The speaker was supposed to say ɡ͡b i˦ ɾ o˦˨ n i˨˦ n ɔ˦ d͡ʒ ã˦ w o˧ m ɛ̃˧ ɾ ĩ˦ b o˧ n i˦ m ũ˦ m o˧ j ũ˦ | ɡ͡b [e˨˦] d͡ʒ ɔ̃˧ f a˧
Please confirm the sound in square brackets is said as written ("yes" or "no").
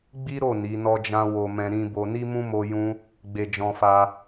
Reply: no